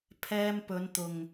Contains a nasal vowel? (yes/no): no